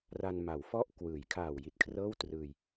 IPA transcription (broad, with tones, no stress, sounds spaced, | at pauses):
r a˧ n m a˩˦ w f ɔ˥˩ ʔ k w ɯː˩˦ j kʰ aː˨˩ w j i˨˩ t̚ kʰ r ɤː˥˩ w t r ɯː˧ j